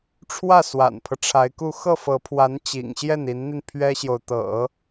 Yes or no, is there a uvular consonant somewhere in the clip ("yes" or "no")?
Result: no